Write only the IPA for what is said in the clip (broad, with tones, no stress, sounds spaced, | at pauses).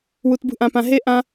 w u˨ t b ṳ˧ ʔ ã˨ p ã˨ ɦ e˦ ʔ ã˦